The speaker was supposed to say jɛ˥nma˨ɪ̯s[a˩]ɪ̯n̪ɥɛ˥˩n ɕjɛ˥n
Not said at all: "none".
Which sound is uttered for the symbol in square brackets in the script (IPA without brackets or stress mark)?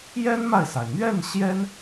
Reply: a˩